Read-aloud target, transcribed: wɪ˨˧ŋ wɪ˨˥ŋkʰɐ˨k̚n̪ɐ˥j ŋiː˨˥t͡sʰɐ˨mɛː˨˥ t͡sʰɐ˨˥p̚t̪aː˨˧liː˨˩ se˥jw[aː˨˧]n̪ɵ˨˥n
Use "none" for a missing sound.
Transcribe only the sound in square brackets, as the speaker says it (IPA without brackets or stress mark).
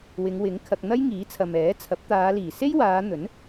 aː˨˧